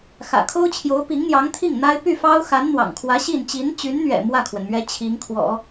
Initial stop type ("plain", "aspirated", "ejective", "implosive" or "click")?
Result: aspirated